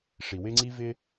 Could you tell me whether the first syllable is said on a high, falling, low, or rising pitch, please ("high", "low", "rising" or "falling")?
low